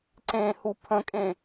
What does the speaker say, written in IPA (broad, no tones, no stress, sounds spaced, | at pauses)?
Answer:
ǀ ẽ h u pʰ ə̃ kʼ ẽ